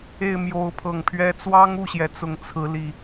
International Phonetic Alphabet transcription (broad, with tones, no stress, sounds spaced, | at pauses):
e˥˨ ɪ̯ m j o˨˦ ʊ̯ pʰ ɤ˨˩ ŋ pʰ ɥ ɛ˦ t͡s w ɑ˦ ŋ u˥˨ ɕ j ɛ˩ t͡s ʊ˨˩ ŋ t͡sʰ ɹ̩˨˦ l i˨˩